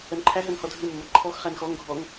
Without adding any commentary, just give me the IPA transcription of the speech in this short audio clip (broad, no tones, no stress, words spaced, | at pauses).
ɜnǃʰæɦɜn hɔdʱɨmːɐ ǃʰɔx χænxɔŋɡʱɔŋ